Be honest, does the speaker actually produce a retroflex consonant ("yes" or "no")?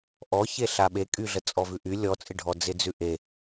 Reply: yes